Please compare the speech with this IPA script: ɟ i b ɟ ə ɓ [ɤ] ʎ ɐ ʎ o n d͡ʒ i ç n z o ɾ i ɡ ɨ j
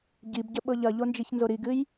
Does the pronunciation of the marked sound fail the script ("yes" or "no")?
no